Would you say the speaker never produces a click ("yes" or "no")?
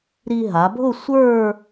yes